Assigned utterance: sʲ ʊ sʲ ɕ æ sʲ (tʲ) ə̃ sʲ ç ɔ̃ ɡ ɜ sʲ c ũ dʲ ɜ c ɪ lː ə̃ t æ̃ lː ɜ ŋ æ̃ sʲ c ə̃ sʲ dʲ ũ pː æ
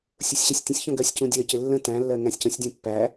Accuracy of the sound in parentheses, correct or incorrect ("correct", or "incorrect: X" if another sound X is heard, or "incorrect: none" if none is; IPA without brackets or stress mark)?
correct